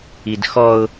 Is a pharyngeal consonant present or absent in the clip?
absent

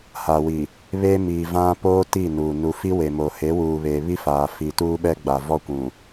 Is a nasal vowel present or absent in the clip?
present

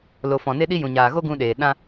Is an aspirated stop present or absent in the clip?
absent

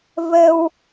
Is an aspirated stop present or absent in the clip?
absent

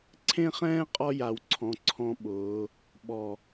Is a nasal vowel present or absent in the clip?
present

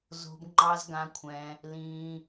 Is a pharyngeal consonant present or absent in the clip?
absent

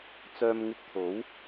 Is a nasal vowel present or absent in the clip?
absent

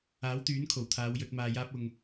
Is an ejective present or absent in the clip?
absent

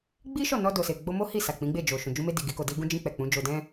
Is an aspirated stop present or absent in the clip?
absent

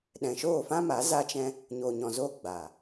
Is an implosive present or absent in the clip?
present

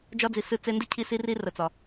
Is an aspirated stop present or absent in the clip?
present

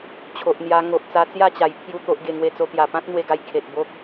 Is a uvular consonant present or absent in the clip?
absent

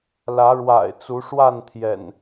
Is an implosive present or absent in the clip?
absent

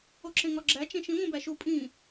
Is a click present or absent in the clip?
present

